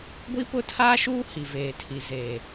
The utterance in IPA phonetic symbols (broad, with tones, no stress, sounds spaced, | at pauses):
ɡʷ i˦ p ʊ˦ tʰ aː˦ ʃ uː˦ h i˨ v eː˨ tʰ i˨ z eː˨